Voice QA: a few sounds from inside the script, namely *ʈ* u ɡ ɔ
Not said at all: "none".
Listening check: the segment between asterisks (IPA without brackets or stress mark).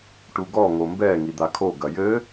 ʈ